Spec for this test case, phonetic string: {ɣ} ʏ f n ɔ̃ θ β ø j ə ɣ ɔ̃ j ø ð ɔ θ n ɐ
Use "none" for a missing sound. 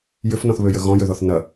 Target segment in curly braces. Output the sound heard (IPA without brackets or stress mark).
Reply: j